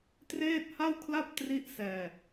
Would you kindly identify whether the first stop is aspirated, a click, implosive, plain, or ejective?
plain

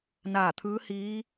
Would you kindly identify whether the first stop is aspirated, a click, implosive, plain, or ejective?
aspirated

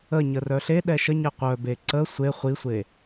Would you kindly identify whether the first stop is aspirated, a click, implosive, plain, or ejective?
implosive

